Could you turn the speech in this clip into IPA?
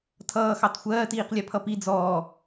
tʰ ʌː x ɑ t xʷ ɜː t iː q lʲ ɛ pʰ ʌ p i d͡z ɔː

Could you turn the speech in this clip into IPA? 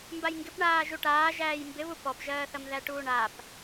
m b a j ŋ ɡ ɪ p ɳ aː ʒ u ʈ aː ʒ æː j m b ɪ β u p ɔ p ʒ ɜː θ ɐ m ð æ ʈ uː ɳ a p

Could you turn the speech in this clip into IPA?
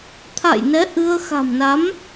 t̪ʰ a̰˧˨ j n ɛ˨˦ ʔ ɨ˧ ə̯ x a̤˨˩ m n a˨˦ m

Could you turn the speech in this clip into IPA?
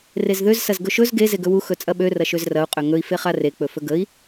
r e z ð ø z s ɐ z ɡ ɵ ʃ ɵ z ɡ e z e ɡ ɵ w u x ɵ t͡sʼ ɐ ɓ ø r ɐ ʃ ø z r ɐ u̯ qʼ ø ŋ ɵ i̯ f e χ a r e k͡p ɵ f ɵ ɡ ə i̯

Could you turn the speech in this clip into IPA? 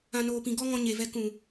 ã˨ n oː˨ p ĩ˨ ɡ ɔ˦ ŋ ɔ̃˧ ɲ e˨ v ɛ˧ k ũ˨

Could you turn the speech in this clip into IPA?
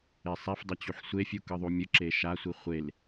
e sˤ ɛ f dˤ ɛ t͡ɕ u ħ sʷ e fʲ u k ɯ ðˤ u mʲ ɯ ǁ e ʃ a sʷ i χʷ e l

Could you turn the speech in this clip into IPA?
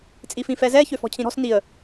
t͡sʼ i f ĩ f ɛ z ɛ ç ø f ɔ̤ cʰ ĩ ɾ ɔ̤ s n i ə̯

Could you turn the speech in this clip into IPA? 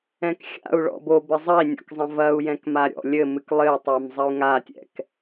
ɛ̃ k xʲ a̰ u̯ ɭ ɔ̰ b o b ɘ zˤ ɐ i̯ nʲ ɔ̰ k zˤ ɐ̃ v ɐ u̯ j ɛ̃ k m a ɾʲ ɔ̰ lʲ ɘ m ɨ k lˠ ɘ y̯ tˤ e m zˤ ɐ u̯ ŋ a tʲ ɛ̰ k

